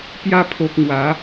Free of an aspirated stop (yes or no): no